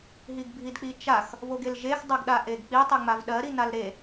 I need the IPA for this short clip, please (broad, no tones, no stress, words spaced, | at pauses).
ɦiɡbʱidk͡pit͡ʃax | voɡelʒex dˤɜɡɗaʔeɡk͡pi tˤeŋ͡mavɗɜ ɾinalɾe